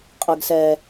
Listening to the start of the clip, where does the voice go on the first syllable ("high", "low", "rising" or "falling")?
low